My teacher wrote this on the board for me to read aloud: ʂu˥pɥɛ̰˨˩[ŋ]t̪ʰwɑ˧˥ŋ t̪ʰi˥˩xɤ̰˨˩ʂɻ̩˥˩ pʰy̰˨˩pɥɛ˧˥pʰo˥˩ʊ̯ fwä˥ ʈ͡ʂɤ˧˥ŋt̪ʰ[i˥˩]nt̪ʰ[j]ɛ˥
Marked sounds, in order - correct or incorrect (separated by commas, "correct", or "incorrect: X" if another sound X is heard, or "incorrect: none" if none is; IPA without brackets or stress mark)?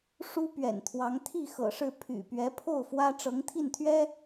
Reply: incorrect: n, correct, incorrect: ɥ